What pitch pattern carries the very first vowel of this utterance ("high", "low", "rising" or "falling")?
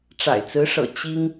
low